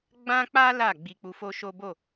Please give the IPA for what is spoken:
ɡ͡b ã˦ k͡p a˦ l a˦˨ ɡ͡b i˧ k͡p u˧ f o˦ ʃ o˦ b o˦˨

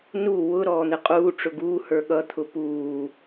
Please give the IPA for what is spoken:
n u w ʊ ɾ ɔː n̪ ɪ qʼ uː ʈ͡ʂ ʊ ɡ uː h ə˞ ɠ ʌ t̪ʰ ʊ p uː

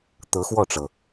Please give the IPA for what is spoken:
t̪ ɤ˧˥ x w ɔ˥˩ ʈ͡ʂ ɤ˩

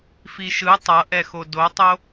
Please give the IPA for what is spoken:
f i ʃ ɯ tˤ ʌ ʔ ɛ x o d o tˤ o

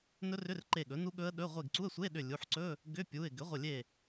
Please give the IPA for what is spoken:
n ɵ˦˥ r ʏ˧˥˧ r ǃ e˧˩ ɠ ɵ˩˥ n u˦˥ ɠ ɵ˦˥ ə̯ ɗ ɵ˧˥˧ ʁʷ e˧˩ ɡ ǀ u˧˥˧ ə̯ sʷ e˧˥˧ ɗ ʏ˧˩ lʲ u˩˧˩ ħ ǀ ɵ˧˥˧ | ɡ ʏ˧˥˧ pʲ u˩˧˩ ɪ̯ ɡ ʏ˩˥ ʁʷ ə˧˩ lʲ e˧˩

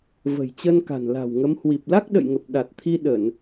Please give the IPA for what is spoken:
v ə̤˨˩ j t͡ɕ ə˧ n k a̤˨˩ n l a̤˨˩ w ŋ ə˨˦ m h w i˨˩ p̚ l a˦˥ k̚ ɗ ə̰˧˨ j ŋ ə˨˩ p̚ ɗ a˨˩ t̚ t̪ʰ i˧ ɗ ə˧˩˨ n

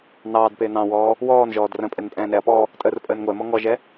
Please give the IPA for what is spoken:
n ɑː d p ɪː n ɑ̃ w ɔː | w ɔː n ʒ ɔː d r ə̃ pʼ ɛ n pʼ ɛ̃ː n ɛ ɐ̯ p ɔː | tʼ əː r pʼ əː n ŋʷ ɛ m ɔ ŋ ɔ ʒ ɛ

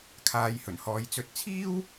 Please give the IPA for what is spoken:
kʰ aː˨˧ j h ɵ˨˩ n h ɔː˨˧ j t͡s ɵ˨ t̚ t͡sʰ iː˥ w

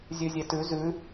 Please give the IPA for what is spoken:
zʲ ʉ zʲ e t ʉ z ʉ

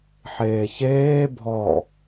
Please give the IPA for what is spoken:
ħ eː ç eː bʱ ɔ

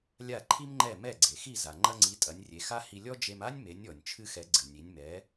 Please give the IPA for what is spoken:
lʲ a˥˩ ǃʰ i˥ m ŋ͡ǃ ɛ˥˩ m ɛ˥˩ ɡ͡ǀ e˩ x i˥˩ z a˩ ŋ͡ǃ ɐ˧ ŋ͡ǀ i˩˥ tʼ ɐ˩˥ nʲ rʲ e˩˥ x a˥ h i˧ lʲ ɔ˥ d͡ʒ e˧ m a˥ nʲ m e˩˥ nʲ ɔ˩ nʲ t͡ʃʰ ɨ˧ x ɛ˩˥ ɡ͡ǀ ɨ˩ nʲ i˩˥ nʲ m ɛ˩˥

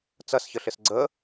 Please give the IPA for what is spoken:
t͡s ɐ s ç ə ɬ ɪ s ɡ͡ǀ ə

